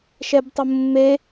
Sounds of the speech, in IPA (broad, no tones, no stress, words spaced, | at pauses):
ʃɛbtˤʊmːe